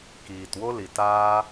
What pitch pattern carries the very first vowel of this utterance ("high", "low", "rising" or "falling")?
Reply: low